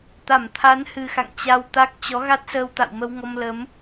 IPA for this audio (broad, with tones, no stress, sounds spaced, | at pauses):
t̪ a˧˩ m t̪ʰ a˨˦ n h ɨ˨˩ x a̰˧˨ ŋ t͡ɕ a˧ w t̪ a˦˥ k̚ t͡ɕ ɔ˨˦ ɣ a˦˥ t̚ s əː˧ w t̪ a̰˧˨ w m ə˧ w ŋ ɔ˧ m l ə˨˦ m